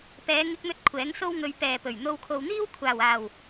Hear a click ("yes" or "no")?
no